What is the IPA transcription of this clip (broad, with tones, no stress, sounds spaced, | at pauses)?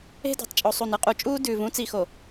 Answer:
e̤˦ d ṳ˨ tˤ t͡ʃʼ o˨ sˤ u˨ n ɯ˦ qʼ u˨ t͡ʃʼ uː˦ d ʉː˨ v ũ˦ t͡s i˨ x o˨